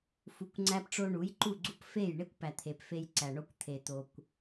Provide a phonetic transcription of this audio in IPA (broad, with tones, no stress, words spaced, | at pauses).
fu˨kʷŋ͡ǀæ˧pʈ͡ʂo˧ ɳu˨˦jǃu˦˨ɡ͡ǀu˦p fe˦˨j ɳe˦kʷpæ˨t̪ʰe˨p fe˧j ǀæ˨ɳo˧kʷ t̪ʰe˨ t̪o˨kʷ